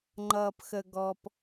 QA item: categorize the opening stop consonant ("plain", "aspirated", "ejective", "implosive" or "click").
click